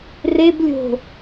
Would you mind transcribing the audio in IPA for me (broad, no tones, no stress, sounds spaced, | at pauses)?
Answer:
r e b lʲ o̤